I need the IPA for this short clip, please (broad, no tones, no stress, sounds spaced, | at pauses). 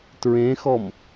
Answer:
t ɹ ẽ x ɔ m